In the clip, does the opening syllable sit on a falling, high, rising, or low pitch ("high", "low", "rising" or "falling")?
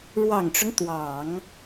low